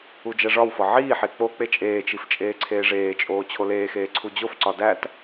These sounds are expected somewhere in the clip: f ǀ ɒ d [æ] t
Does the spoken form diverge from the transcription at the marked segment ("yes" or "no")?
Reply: no